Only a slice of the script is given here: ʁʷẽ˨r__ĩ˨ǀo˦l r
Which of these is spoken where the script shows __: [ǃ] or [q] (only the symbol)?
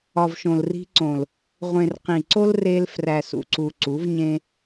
q